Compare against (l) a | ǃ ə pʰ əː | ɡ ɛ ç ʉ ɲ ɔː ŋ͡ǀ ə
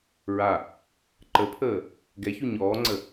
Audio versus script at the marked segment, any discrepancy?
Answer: yes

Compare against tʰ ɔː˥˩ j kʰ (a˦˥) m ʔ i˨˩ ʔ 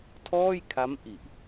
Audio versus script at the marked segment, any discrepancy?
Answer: no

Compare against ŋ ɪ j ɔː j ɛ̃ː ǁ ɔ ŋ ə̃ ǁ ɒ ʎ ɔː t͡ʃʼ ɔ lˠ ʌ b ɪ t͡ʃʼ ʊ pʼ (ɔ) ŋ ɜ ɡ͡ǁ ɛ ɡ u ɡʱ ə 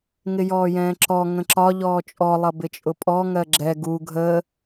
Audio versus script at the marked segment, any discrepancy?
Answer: no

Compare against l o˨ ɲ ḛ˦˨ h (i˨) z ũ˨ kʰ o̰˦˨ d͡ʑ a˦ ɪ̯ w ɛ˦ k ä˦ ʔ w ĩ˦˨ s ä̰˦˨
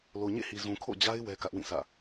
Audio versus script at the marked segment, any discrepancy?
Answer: no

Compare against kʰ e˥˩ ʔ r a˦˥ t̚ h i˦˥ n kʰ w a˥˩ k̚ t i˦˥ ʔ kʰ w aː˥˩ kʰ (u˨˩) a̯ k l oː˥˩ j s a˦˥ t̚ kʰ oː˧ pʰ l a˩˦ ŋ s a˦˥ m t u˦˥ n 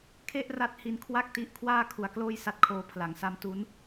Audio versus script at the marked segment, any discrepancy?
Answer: yes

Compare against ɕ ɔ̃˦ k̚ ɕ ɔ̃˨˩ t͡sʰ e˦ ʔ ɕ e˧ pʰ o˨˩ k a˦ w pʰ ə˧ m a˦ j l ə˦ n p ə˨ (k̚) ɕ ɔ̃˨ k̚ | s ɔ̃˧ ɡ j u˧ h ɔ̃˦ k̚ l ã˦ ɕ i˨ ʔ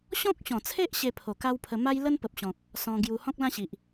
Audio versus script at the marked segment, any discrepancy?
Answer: yes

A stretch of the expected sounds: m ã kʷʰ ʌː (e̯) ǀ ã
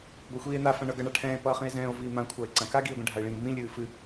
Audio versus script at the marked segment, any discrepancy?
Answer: no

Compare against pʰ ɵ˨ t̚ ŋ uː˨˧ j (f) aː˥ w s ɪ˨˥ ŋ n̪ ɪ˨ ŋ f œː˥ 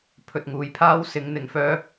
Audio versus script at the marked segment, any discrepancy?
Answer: yes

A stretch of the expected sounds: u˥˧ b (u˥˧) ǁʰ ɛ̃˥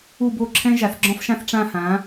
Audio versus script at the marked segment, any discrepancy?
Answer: yes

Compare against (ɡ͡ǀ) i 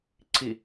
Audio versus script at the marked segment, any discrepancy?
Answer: yes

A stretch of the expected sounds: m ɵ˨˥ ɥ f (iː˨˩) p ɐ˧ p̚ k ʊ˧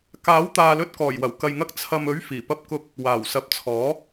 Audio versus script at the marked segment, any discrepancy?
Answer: no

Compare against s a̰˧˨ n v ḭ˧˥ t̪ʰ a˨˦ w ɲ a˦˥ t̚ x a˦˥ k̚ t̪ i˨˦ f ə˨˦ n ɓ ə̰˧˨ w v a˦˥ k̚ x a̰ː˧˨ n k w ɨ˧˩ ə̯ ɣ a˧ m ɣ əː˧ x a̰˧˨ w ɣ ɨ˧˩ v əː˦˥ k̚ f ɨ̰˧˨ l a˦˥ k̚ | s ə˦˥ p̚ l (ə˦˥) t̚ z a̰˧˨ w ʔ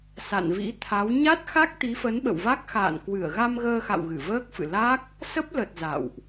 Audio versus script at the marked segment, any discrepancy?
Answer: yes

